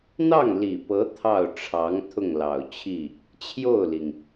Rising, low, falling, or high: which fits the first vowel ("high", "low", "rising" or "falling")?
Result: falling